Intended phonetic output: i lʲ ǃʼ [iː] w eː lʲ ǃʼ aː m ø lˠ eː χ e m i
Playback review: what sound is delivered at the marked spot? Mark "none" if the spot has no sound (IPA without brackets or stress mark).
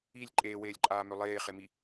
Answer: eː